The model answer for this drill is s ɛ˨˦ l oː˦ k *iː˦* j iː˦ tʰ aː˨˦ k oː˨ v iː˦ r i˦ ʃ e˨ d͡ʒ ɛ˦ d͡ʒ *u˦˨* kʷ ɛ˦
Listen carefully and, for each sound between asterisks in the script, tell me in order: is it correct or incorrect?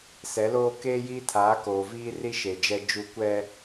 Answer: incorrect, correct

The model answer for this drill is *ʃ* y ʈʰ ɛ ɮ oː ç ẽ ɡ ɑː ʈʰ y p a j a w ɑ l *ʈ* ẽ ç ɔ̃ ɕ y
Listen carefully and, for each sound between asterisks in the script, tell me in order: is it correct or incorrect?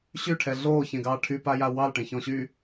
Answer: incorrect, correct

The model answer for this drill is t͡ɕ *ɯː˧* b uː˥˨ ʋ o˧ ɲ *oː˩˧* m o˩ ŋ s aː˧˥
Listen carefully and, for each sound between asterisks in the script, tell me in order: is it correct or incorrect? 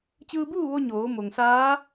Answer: correct, correct

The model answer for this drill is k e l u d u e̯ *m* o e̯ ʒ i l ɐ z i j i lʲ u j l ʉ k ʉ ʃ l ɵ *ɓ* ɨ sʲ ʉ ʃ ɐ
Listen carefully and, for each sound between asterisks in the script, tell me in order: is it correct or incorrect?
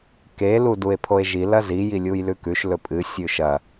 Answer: incorrect, incorrect

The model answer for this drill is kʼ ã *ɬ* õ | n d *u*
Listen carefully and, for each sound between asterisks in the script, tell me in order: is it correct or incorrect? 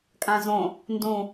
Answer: incorrect, incorrect

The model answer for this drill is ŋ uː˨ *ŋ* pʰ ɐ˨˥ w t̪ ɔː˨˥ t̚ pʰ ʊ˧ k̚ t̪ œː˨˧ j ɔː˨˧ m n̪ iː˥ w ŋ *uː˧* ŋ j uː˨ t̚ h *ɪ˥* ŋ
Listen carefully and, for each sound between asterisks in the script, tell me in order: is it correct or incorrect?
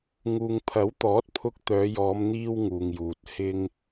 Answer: correct, incorrect, correct

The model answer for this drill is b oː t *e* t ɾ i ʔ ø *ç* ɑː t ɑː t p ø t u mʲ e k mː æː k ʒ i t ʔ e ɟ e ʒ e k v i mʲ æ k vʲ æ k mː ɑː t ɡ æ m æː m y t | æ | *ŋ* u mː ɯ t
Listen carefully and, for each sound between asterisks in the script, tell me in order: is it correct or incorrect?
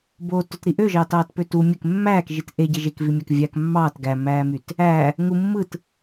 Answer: incorrect, incorrect, correct

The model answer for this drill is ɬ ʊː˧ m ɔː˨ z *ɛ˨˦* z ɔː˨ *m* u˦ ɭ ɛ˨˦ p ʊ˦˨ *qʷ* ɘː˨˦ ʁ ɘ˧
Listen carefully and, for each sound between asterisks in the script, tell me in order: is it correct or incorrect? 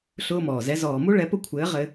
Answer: correct, correct, incorrect

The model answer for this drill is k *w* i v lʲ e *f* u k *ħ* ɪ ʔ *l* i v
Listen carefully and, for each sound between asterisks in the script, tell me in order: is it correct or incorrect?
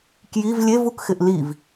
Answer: incorrect, incorrect, incorrect, correct

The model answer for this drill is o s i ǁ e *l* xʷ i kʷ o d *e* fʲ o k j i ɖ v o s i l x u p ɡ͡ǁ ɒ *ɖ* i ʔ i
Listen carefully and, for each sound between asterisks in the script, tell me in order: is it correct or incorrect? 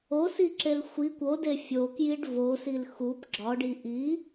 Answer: correct, correct, correct

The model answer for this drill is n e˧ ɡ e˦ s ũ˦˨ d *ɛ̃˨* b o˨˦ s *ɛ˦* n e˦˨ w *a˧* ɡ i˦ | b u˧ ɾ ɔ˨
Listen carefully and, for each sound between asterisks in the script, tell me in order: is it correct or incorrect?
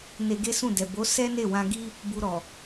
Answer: incorrect, correct, incorrect

